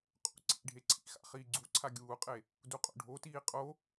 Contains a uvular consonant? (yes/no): yes